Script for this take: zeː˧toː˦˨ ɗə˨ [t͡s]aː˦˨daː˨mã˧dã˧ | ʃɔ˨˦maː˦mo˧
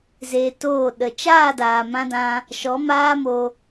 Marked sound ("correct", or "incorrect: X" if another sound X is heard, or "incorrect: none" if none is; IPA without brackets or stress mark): incorrect: t͡ʃ